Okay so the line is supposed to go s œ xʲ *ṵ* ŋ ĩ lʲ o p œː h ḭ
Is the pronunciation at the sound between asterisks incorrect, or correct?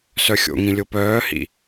incorrect